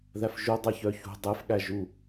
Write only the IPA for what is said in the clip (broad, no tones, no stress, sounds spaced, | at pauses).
ð æ f ʒ u dˤ ɛ ç œ ç ṳ dˤ e f ɠ æ ʒ u